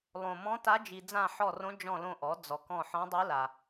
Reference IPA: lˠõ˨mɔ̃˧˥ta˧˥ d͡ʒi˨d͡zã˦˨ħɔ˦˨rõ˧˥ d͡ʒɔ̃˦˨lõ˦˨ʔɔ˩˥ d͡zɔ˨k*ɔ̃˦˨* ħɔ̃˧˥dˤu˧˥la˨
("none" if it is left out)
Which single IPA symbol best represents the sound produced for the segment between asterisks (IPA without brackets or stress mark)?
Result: ɔ̃˦˨